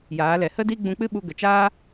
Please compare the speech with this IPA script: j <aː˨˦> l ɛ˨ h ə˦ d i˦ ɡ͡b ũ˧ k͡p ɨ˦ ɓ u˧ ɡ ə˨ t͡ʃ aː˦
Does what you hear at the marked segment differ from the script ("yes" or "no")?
no